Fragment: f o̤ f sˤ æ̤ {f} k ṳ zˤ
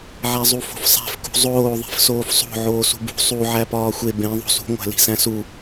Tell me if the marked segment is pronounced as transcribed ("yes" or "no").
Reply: yes